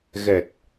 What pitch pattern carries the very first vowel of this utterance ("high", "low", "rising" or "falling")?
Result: low